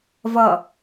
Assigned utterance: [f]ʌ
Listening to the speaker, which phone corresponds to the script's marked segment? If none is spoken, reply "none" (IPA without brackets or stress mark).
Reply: v